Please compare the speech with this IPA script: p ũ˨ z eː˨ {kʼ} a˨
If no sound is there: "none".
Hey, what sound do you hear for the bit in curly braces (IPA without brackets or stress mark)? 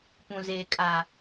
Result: kʼ